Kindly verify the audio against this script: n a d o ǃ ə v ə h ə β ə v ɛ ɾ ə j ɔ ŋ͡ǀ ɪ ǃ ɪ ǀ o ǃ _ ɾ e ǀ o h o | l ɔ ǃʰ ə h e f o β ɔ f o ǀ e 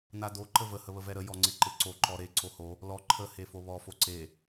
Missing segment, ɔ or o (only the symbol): ɔ